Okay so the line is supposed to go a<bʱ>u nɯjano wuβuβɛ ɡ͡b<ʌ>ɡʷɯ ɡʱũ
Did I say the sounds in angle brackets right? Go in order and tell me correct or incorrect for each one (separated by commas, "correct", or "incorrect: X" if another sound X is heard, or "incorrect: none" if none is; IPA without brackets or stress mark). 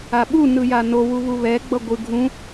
incorrect: ɓ, correct